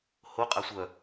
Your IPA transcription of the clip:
ho qʼasʷœ

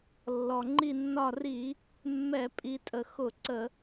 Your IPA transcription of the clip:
lːɔ˩ŋ͡ǃi˧˩nːɒ˧˩ri˧˩˧ | mːɛ˧˩˧ pʼi˩˧tʼə˩ xʊ˧˩˧ǀə˧˩˧

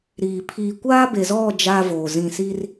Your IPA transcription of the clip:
ɾiː˨ pʰiː˨kʷaː˦be˨zɔ˦˨ d͡ʒaː˦voː˨zĩ˦˨ si˦r

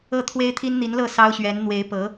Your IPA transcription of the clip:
ɤ˥˩t̪ʰwe˥ɪ̯ t̪ʰi˥nn̪i˧˥nlɤ˥˩ sɑ˥ʊ̯ɕɥɛ˧˥n n̪we˧˥ɪ̯pɤ˧˥

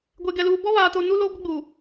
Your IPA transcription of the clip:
ɡʷe˨ɡɛ˨luː˨ bɔ˦βaː˨ to˨nu˦loː˦ ɡʷɪ˦ɡ͡buː˨

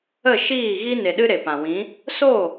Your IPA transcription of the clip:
ə˦˨ʃiː˦˨ɣi˦ne˨ ɗɨ˦ɾe˨pã˨wĩ˨˦ | so˦˨

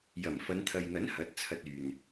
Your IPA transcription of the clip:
jɐ˨˩mfɐ˨˧nt̪ʰɐ˨jn̪ɐ˨˥n hɐ˨˥t̚t͡sʰɐ˧t̚yː˨n

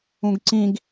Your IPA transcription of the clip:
ũɡǀĩɡ

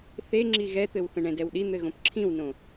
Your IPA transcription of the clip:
θe ŋ͡ǁiɣɛt̪ɘw θə̃ɳɛ̃dɛwɗi n̪ɘɣõpǁʰĩwnõ

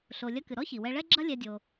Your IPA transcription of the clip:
ɬo˩lʲɐ˧kɨ˩ ɾɔ˥çi˩wɛ˧ ɭɛ˥ɡ͡ǁɐ˥lʲɛ˧dʲo˩

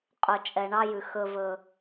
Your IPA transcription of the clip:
qʼɵ˨t͡ʃʼɛ˨ɳɑ˦jʉ˨ xɵ˦vɵ˦

